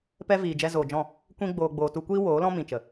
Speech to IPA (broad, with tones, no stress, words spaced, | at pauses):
pɛ˧ viː˨d͡ʒɛ˧zoː˨d͡ʒɔ̃˦˨ | kʷĩ˧ɡ͡boː˨ ɡ͡boː˨tu˧kʷiː˦ woː˨˦lɔ̃˦ mĩ˨t͡ʃə˨